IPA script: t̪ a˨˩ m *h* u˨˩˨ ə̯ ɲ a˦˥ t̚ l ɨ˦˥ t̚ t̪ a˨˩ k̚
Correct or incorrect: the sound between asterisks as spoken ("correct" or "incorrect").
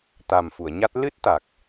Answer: incorrect